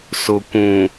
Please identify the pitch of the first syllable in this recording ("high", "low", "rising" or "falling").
low